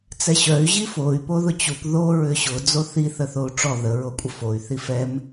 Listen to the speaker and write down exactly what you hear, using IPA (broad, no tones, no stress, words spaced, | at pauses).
t͡sɛɕœy̯ ʑifoy̯ poðʊt͡ɕup ðo ɹʏɕʊ d͡zoθi θəθou̯ʈ͡ʂɔ ðə ɹokʷʼəfoy̯ θifɛm